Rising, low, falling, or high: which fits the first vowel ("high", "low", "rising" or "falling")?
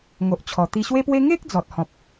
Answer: low